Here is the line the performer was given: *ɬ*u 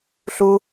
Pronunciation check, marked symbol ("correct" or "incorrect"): correct